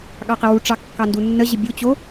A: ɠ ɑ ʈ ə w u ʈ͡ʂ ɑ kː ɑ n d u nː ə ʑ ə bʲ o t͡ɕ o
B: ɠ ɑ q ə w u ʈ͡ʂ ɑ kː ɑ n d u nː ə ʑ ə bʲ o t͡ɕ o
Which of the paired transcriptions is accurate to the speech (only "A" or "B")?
B